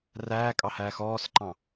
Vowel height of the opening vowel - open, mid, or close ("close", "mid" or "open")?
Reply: open